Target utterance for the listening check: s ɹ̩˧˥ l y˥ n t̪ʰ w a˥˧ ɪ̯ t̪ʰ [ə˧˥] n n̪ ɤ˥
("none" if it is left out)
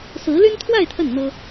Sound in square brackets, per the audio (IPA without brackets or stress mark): ə˥˩